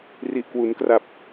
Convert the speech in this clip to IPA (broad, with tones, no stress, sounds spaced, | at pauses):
r i˨˩ ʔ k w u˩˦ n k r a˨˩ p̚